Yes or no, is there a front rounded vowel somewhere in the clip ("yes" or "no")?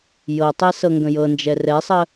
no